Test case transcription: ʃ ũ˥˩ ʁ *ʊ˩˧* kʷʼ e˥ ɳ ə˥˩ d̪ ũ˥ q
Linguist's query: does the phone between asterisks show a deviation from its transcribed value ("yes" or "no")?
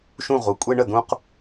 yes